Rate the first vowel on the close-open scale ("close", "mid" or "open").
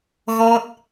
mid